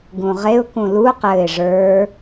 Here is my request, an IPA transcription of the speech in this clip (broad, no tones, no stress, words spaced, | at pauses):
ɡũʁeʊ̯ kũlu qɘɪ̯ ʐə˞